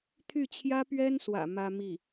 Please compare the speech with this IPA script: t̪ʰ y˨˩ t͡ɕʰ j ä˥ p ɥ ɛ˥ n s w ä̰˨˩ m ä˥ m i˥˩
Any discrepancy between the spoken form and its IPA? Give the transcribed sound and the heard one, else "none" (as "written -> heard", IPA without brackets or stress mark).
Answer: y˨˩ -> y˥˩